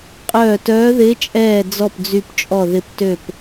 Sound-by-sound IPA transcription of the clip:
qʼ œː˧˩ t œː˧˥ ð ɪː˧˥ t͡ʃʼ ɛː˧˩ d͡z ɔ˧˩ p d͡z y˧˩ p t͡ʃʼ ɔ˧˩ ð ɪ˧˩ p t ø˧˩ p

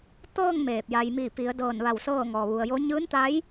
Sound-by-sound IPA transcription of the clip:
t̪ ɤː˥˨ ŋ m eː˧˩ p̚ j a˧ j m iː˧˩ p i˩˧ ə̯ d ɤː˧˩ n ʋ a˧˩ w s ɤː˥˨ ŋ ɔː˩ ʋ u˩ ə̯ j o˧˥ ɲ ɯː˧˥ n t̪ a˧˥ j

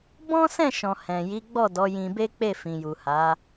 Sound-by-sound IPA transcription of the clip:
b ɔ̃˦ s ɛ̃˦˨ ʃ ɔ̃˨ h ɛ̃˨ j i˨˦ ɡ͡b ɔ˦˨ d ɔ˨˦ j ĩ˧ b e˦ k͡p e˦˨ f ĩ˨ j u˨ h a˨˦

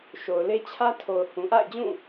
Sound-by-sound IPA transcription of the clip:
ʃ o˨ ʊ̯ l e˦ t͡ɕʰ ä˦ tʰ o˨ ʊ̯ h ũ˨ ʔ a̰˦˨ ɪ̯ d͡ʑ ũ˦˨

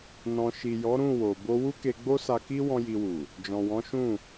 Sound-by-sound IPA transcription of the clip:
n ɔ̃˨ ʃ i˨ j ɔ˨˦ ɾ ũ˦˨ w o˨ b o˧ w u˦ k e˧ ɡ͡b o˦ s a˧ k i˦ w ɔ̃˦ j i˧ w u˨ | d͡ʒ ɔ̃˨ w ɔ̃˨˦ ʃ ũ˦˨

